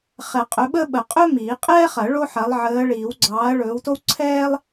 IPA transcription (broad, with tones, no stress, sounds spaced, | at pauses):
χ ɛ˨˩˦ qʼ ɵ˨˥ ɓ əː˥ ɓ ə˨˩˦ qʼ ɵ˥ m iː˨˩˦ qʼ ɛː˥ χ ɐ˨˩˦ ɭ o˥ ħ ɐ˨˥ lˠ ʕ əː˨˥ ɭ iː˨˩˦ w ɡ͡ǀ ɑː˨˥ ɐ̯ ɭ ɵː˨˥ w t o˥ w ǀʰ ɛː˥ lˠ